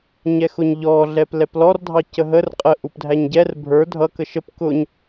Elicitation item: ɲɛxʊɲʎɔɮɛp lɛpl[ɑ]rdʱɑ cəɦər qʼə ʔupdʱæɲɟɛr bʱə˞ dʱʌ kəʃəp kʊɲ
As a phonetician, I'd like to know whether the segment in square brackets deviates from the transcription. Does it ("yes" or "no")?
yes